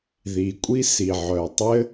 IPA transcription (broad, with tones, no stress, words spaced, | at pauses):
ði˩kʷʼi˥ si˩ʕœ˩tˤɘ˥